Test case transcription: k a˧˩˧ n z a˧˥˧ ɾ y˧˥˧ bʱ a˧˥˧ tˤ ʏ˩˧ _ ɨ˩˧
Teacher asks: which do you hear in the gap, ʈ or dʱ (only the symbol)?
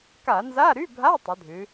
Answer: dʱ